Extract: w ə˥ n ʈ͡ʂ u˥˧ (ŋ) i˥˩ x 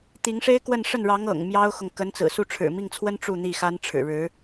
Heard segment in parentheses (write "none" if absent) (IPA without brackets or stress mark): n̪